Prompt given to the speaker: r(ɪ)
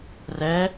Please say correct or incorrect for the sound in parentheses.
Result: incorrect